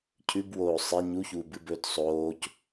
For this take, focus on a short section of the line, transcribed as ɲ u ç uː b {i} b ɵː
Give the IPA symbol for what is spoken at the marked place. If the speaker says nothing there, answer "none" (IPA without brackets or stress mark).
ɨ